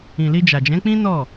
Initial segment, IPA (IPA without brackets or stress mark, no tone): ĩ